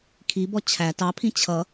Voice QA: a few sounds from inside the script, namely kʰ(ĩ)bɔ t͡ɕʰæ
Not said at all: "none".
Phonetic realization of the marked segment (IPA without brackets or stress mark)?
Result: i